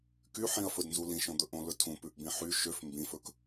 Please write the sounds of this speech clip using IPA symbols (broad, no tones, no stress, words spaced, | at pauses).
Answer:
kyħĩɐ̯fɵdnzu lĩʃõd̪ɵ ʔõlɵtʰũ pʉʔbĩħy ʃøf mbĩfɵk